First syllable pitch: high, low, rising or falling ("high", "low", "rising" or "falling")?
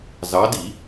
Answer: rising